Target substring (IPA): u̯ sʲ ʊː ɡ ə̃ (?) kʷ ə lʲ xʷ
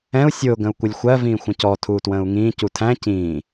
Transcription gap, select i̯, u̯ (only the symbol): u̯